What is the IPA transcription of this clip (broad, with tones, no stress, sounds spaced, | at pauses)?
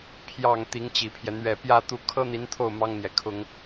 pʰ j ɑ˨˩ ŋ t̪ i˧˥ ŋ t͡ɕ i˨˩ pʰ j ɛ˦ n̪ ɥ ɛ˨˩ p j ä˥˧ t̪ u˥˩ kʰ ɤ˥ n̪ i˧˥ n t̪ʰ o˥˩ ʊ̯ m ɑ˥ ŋ n̪ j ɛ˨ kʰ ʊ˥ ŋ